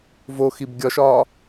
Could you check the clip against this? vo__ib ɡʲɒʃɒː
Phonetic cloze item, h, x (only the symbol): x